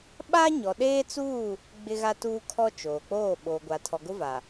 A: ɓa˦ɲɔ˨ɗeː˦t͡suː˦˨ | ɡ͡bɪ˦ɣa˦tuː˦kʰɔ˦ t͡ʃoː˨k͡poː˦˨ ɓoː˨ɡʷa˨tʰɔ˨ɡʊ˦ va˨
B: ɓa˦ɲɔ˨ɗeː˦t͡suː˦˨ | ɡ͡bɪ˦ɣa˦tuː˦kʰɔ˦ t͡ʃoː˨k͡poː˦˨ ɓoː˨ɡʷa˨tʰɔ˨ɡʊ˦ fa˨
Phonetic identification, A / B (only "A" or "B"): A